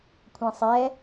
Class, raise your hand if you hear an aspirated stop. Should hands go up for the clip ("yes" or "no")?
yes